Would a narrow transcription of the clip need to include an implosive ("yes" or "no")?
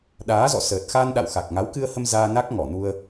yes